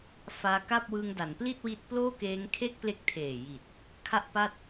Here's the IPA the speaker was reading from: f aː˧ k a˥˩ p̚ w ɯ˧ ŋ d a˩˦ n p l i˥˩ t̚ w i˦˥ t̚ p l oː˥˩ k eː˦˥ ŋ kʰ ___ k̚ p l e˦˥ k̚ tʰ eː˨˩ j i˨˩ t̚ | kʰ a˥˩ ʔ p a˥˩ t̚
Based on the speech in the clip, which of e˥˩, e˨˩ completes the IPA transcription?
e˥˩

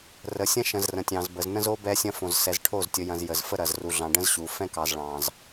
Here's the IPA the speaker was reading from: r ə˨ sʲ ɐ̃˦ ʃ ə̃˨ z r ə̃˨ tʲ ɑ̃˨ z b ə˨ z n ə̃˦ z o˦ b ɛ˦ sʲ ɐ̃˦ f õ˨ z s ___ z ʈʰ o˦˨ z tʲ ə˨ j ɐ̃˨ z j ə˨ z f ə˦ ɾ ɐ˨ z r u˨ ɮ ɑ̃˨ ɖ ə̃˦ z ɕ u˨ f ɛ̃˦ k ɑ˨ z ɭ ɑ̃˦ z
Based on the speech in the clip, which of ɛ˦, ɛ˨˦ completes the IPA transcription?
ɛ˨˦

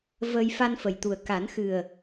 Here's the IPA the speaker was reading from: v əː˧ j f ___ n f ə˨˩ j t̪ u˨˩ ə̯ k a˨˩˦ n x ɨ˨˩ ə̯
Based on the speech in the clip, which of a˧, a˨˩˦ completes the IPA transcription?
a˧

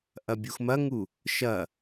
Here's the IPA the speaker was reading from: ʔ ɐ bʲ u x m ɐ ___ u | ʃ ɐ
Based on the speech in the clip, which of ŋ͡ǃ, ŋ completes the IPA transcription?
ŋ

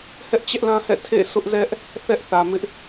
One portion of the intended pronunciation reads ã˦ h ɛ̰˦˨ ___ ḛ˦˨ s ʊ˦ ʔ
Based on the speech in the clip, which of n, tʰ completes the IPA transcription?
tʰ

